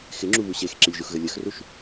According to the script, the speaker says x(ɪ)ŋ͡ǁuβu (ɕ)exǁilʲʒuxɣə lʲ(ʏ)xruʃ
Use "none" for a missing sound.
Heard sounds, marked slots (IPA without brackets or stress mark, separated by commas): ɪ, ɕ, ə